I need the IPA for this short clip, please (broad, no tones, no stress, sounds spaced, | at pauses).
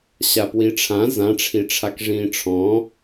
ɕ a p w i ʈ͡ʂʰ ã z ã ʈ͡ʂʰ i ʈ͡ʂʰ a k ʐ ĩː ʈ͡ʂʰ ɔ̃